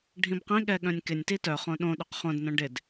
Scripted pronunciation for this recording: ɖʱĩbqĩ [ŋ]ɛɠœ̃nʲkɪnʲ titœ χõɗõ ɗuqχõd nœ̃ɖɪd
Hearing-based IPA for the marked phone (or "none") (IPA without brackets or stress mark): ɠ